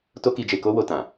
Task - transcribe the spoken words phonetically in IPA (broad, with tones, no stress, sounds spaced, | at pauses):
t o˦ k i˧ d͡ʒ e˧ k o˦ w o˧ t ã˨